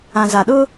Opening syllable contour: low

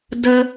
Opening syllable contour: high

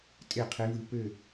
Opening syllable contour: falling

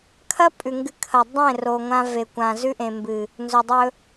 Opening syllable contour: high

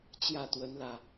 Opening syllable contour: falling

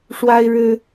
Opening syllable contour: high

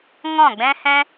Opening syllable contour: falling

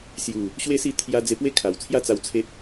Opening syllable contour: low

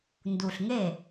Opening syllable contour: low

